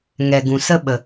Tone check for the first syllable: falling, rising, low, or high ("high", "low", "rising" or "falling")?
low